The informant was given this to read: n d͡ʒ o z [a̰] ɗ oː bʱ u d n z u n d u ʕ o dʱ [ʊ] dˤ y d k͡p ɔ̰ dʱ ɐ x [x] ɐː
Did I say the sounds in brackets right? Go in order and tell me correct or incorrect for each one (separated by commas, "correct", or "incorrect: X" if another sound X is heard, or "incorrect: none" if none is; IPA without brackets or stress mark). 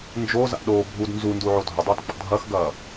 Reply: correct, correct, incorrect: ɡ